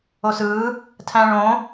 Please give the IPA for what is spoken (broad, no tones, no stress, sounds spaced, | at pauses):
o s ɯː | tʰ æ̃ ɭ õ